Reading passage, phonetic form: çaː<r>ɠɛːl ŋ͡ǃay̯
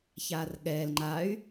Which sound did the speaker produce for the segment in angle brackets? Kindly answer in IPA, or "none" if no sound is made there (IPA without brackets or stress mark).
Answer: r